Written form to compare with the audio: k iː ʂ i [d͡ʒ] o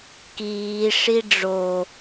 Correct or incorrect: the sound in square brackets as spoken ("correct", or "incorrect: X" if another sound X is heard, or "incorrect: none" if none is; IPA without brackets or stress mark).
incorrect: ɖ͡ʐ